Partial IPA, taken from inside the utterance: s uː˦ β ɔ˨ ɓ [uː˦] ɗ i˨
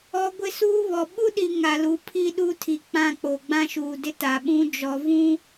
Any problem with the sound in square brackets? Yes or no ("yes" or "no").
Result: yes